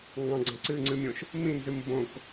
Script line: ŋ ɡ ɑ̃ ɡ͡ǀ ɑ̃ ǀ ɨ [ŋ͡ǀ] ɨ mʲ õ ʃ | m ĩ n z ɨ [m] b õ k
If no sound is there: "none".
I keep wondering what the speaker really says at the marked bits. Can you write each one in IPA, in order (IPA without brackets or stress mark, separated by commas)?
ŋ͡ǀ, m